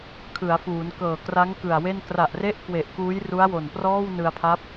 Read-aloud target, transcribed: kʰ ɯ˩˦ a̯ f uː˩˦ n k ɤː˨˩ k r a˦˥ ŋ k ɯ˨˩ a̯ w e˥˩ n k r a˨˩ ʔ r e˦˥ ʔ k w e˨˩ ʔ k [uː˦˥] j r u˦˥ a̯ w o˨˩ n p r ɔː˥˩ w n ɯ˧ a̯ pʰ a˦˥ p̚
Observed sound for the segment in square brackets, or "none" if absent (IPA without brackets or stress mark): uː˦˥